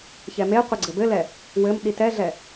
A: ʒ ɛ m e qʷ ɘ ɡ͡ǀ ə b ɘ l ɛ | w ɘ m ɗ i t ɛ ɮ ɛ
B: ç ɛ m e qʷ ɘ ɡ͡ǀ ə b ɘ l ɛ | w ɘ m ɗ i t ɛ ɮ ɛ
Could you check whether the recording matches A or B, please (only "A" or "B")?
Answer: B